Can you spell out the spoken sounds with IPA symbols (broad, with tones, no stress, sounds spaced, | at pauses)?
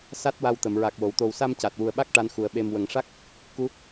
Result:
s a˦˥ t̚ w a˧ w t̪ ə˨˩˨ m ɹ a˨˩ k̚ w o˨˩˨ w t̪ o˨˩ w s a˧ m c a˨˩ t̚ w u˨˩ ə̯ ɓ a˦˥ k̚ ʈ a˧˥ n x u˨˩ ə̯ ɓ e˨˩ m w ə˨˩˨ ŋ ʂ a˦˥ k̚ | k u˧˥